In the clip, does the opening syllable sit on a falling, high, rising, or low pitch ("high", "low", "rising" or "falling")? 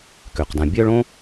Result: low